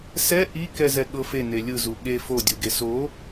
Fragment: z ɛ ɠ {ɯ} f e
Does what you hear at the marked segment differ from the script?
yes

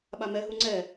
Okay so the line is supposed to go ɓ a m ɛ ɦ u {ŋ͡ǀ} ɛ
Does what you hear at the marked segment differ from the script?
no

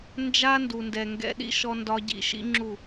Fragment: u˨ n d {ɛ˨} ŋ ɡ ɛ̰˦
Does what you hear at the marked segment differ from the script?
no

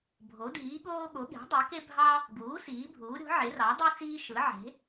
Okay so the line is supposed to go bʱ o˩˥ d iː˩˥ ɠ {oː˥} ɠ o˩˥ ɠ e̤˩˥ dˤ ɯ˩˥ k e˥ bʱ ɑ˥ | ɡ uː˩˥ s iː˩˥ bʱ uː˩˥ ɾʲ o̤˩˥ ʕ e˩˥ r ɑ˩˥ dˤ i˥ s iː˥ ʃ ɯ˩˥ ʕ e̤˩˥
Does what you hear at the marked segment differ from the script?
no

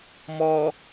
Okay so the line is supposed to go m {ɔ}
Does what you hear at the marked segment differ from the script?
no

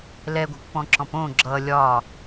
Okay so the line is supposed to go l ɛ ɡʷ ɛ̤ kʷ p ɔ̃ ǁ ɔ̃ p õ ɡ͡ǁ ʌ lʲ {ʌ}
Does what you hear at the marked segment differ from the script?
yes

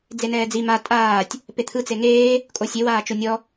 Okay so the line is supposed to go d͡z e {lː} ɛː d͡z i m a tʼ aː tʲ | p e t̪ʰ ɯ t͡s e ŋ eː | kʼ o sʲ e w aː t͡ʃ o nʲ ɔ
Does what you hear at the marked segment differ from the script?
yes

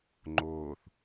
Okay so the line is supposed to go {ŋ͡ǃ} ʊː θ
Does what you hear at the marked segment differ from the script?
no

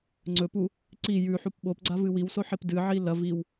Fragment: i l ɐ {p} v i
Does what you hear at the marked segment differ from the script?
yes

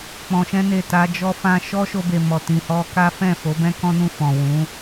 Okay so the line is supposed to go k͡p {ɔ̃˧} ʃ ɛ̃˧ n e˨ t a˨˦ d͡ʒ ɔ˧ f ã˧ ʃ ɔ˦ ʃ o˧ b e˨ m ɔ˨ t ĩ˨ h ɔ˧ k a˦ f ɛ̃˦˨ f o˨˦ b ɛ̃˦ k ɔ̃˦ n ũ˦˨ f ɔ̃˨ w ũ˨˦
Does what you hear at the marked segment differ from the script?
yes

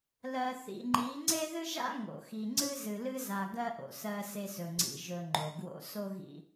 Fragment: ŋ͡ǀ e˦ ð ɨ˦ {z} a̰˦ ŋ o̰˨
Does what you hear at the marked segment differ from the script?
yes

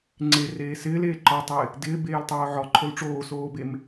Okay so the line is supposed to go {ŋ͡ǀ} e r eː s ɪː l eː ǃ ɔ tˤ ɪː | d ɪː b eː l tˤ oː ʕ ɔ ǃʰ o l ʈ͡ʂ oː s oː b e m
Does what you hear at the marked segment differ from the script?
no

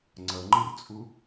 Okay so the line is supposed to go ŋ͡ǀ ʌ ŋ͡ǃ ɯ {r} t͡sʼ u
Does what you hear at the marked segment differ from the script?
no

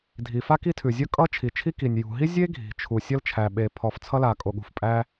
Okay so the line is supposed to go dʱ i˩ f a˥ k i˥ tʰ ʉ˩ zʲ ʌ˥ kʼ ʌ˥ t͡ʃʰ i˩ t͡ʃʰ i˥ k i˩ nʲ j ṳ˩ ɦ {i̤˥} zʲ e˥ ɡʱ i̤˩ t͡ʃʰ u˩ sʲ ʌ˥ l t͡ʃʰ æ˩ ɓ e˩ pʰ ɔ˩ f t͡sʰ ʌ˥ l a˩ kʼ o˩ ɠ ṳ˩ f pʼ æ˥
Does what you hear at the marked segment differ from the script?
yes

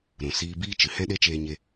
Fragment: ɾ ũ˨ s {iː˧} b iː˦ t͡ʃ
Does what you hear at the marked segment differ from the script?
no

